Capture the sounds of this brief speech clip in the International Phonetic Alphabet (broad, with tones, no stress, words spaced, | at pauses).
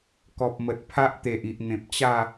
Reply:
kɔ˨p̚mə˨t̚pʰa˦ʔ t̪e˨ʔi˨ʔn̪ẽ˨p̚t͡ɕa˥˧